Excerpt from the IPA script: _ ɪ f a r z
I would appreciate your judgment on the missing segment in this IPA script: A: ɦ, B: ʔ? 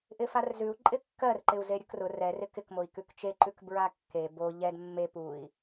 B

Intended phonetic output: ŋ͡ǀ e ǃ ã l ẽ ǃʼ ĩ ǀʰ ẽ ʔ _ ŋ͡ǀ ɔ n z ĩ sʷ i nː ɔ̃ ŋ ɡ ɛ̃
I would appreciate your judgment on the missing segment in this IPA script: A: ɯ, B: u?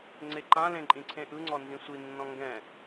A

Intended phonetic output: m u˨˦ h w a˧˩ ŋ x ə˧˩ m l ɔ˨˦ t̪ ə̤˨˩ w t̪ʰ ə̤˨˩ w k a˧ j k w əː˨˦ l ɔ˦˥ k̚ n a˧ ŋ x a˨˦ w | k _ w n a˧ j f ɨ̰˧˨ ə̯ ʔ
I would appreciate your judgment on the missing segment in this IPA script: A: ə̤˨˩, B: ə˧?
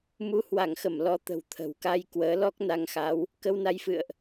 B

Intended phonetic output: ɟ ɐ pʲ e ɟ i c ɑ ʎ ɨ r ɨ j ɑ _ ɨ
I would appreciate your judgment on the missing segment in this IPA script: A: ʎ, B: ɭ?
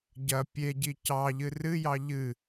A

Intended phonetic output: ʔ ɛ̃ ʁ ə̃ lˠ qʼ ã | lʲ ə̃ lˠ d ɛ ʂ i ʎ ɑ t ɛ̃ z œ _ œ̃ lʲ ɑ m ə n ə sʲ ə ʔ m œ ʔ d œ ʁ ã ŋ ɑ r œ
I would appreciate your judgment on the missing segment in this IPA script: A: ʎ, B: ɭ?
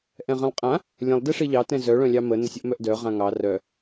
B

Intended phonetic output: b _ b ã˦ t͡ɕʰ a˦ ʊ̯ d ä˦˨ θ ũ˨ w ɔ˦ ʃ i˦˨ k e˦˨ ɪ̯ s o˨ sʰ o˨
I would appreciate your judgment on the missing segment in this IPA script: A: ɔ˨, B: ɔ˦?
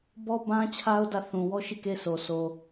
B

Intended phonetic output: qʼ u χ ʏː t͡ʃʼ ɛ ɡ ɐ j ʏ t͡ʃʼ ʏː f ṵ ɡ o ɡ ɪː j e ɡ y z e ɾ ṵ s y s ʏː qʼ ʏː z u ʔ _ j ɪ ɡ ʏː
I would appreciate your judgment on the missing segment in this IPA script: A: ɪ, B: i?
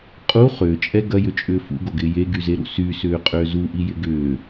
B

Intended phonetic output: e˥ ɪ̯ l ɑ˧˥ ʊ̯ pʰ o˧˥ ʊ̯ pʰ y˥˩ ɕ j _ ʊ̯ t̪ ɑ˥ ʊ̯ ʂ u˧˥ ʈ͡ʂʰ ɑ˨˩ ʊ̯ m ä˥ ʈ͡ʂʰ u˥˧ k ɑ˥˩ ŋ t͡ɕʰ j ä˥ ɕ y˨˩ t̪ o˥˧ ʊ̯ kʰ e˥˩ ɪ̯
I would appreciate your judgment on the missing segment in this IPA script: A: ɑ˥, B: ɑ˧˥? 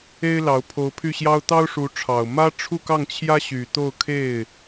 A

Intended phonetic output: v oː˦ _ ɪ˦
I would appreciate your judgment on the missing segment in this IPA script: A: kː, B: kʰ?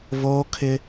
B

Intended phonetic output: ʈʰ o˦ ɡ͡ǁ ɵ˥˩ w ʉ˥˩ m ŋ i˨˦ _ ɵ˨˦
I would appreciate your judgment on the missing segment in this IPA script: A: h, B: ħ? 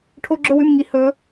A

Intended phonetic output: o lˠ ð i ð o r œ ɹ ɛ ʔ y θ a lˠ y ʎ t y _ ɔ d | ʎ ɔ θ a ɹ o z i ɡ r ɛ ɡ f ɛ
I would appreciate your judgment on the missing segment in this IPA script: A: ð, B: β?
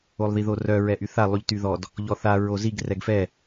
A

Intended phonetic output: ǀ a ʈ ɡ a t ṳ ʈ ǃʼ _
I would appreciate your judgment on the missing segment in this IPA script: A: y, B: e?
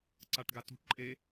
B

